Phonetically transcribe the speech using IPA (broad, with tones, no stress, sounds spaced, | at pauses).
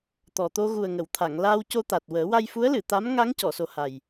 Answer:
t̪ ɔ˨˩ t̪ o˧ ɣ u˨˩ ə̯ ŋ ə˨˩˨ w t̪ʰ a˨˩˨ ŋ l aː˧ w c o˧ t̪ a˨˩ t̚ w əː˨˩˦ w a˧ j f u˧˥ ə̯ l ɨ˨˩˨ t̪ a˧˥ m ŋ a˧˥ ŋ c ɔ˨˩˨ s o˨˩ h a˨˩ j